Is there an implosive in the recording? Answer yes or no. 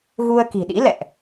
yes